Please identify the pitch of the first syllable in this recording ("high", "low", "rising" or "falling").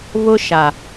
high